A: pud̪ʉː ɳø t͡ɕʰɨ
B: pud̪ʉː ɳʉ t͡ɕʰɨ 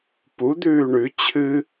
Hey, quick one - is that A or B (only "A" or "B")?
B